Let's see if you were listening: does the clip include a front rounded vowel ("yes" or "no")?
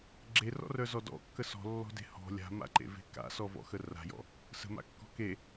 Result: yes